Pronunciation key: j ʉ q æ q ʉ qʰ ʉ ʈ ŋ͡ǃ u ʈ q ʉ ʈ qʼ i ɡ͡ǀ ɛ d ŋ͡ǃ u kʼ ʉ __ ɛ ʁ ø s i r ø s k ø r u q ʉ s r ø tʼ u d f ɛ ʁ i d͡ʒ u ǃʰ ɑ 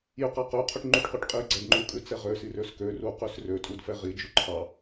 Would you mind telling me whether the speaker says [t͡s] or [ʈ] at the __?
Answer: t͡s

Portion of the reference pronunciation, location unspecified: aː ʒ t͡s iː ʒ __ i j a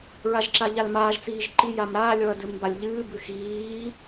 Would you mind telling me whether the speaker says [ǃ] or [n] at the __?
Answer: ǃ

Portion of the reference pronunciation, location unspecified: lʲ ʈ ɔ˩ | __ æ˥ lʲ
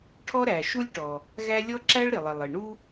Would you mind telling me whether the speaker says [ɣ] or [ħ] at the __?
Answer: ɣ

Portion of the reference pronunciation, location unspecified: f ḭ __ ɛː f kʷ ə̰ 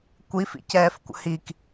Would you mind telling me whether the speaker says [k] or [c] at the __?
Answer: c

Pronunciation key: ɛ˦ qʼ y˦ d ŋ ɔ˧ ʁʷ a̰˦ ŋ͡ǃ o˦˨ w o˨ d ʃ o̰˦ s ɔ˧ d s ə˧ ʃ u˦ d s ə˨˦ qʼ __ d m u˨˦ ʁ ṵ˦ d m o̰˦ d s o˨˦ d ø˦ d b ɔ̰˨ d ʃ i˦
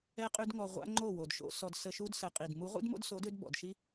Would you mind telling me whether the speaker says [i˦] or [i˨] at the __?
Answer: i˨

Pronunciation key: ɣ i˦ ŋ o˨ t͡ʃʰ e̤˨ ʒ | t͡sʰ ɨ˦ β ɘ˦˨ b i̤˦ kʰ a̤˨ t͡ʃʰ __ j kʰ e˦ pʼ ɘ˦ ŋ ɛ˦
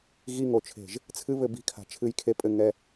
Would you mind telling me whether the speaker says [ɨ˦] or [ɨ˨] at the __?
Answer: ɨ˦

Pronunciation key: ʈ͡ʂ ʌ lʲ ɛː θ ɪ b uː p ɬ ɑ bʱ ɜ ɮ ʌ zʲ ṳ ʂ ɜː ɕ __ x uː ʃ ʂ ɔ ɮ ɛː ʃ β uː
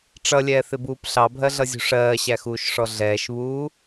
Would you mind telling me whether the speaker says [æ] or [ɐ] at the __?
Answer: æ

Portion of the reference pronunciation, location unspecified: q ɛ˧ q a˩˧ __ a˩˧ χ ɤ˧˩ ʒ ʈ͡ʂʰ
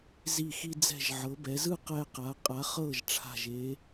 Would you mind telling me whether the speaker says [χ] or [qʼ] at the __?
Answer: qʼ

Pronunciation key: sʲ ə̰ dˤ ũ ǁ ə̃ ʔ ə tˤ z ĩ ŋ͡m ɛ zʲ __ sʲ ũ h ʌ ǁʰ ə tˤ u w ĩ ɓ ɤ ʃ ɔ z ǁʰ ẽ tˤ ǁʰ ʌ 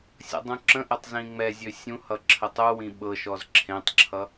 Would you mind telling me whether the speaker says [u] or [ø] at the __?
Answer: ø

